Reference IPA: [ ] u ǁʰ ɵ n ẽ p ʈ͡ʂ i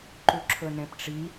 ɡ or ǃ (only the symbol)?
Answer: ǃ